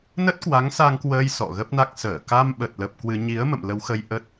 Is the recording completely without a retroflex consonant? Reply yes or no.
yes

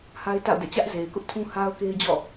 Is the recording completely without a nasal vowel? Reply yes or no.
no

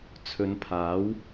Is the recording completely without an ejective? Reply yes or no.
yes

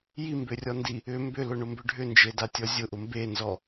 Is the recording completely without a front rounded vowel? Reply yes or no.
no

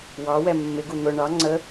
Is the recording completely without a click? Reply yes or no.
no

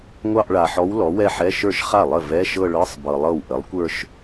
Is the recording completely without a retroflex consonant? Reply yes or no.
no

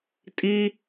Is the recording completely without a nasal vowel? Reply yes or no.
yes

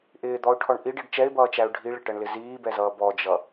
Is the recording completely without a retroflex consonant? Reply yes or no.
no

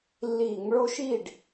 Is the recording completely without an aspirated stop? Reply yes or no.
yes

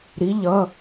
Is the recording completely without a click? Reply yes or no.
yes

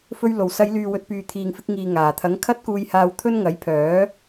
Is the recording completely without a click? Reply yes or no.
yes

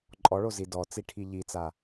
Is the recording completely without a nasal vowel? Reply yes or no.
yes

